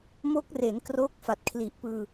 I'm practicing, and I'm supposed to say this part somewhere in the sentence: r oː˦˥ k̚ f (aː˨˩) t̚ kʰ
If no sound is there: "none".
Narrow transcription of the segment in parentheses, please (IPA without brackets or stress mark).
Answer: a˨˩